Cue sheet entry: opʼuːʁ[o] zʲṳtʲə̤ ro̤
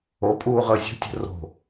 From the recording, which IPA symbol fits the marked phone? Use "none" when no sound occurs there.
ɤ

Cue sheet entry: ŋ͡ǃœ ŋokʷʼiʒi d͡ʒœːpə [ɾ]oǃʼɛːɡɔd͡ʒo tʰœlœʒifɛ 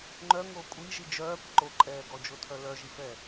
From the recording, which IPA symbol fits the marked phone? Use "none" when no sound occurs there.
ǃ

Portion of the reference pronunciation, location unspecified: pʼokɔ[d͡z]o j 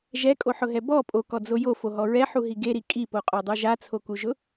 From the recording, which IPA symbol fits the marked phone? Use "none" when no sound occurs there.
d͡z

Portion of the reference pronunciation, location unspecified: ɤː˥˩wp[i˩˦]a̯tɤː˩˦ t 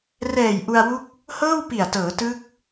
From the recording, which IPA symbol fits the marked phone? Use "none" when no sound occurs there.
i˨˩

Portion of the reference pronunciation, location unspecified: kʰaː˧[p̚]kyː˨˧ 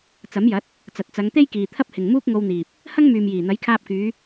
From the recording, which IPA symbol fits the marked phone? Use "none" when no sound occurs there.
p̚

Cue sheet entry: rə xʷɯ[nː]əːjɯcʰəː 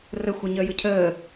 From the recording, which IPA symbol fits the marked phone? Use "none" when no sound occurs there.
ɲ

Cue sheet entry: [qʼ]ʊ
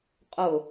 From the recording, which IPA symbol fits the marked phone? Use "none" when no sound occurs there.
qʼ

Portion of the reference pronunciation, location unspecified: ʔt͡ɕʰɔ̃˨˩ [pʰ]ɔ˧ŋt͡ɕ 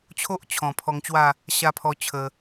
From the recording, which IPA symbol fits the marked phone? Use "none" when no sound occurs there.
pʰ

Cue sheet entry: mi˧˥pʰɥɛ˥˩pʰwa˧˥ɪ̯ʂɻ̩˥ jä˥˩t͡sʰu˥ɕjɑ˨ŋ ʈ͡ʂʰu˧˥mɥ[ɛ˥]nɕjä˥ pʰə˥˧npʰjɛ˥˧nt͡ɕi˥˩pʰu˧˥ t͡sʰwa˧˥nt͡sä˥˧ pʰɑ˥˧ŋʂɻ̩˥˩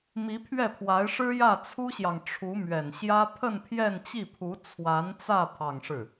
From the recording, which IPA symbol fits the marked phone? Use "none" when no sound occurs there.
ɛ˨˩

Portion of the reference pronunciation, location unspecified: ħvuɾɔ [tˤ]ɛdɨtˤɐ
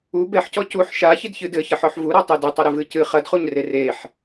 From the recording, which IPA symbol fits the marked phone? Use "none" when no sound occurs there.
tˤ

